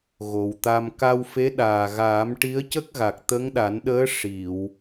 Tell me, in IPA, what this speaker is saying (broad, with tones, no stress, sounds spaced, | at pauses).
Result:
ɣ o˨˩ w t̪ a˧ m k a˧ w f e˧˥ ɗ aː˨˩ ɣ aː˨˩˦ m ʈ i˧˥ ə̯ c ə˦˥ k̚ ɣ a˨˩ k̚ t̪ ə˧˥ ŋ ɗ a˨˩˦ n ɗ əː˧˥ ʂ i˨˩˨ w